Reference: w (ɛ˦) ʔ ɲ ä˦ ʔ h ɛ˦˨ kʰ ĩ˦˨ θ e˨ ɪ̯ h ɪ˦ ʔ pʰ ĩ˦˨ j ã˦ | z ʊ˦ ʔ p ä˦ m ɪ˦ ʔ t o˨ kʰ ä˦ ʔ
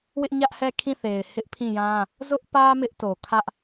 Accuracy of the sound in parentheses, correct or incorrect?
incorrect